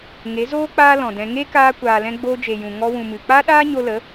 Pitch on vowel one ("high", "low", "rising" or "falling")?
rising